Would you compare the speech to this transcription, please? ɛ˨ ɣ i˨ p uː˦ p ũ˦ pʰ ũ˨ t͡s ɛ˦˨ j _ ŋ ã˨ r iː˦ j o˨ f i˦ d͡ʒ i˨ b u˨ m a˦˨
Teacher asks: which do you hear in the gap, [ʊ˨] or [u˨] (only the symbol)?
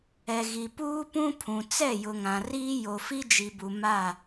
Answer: ʊ˨